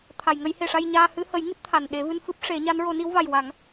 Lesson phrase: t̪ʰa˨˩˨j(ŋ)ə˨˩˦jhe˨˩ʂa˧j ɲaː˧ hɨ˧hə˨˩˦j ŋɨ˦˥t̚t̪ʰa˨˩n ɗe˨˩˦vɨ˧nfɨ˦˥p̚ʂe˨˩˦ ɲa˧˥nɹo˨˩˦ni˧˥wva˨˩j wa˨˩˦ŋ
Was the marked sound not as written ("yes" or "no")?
no